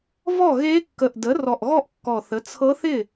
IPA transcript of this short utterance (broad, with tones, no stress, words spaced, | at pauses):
vɔ˥˩ɣe˧˥ kːə˨˩ʔdə˩˥rɔ˨˩ʔɣɔ˥˩ʔ kːɔ˨˩θə˩˥ t͡sʰɤ˧˥θɪ˥˩